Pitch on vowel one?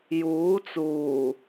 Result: rising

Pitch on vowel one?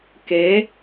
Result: rising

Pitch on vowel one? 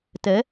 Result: rising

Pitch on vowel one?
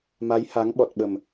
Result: rising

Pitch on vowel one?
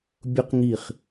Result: high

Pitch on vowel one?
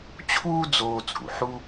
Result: high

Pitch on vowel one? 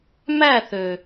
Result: falling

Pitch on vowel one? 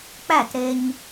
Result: falling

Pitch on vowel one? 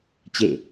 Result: falling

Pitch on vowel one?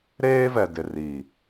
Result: high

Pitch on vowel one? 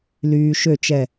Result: low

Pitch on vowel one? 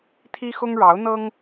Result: high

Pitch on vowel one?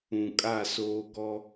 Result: low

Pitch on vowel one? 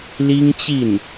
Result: high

